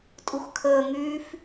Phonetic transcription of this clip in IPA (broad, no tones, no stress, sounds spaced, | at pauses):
tʼ u x kʰ əː ŋ yː f